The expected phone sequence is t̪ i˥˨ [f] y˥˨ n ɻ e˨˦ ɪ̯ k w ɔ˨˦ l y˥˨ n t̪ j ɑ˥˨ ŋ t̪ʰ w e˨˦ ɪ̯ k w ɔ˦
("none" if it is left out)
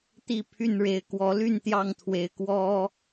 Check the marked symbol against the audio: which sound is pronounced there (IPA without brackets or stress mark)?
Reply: pʰ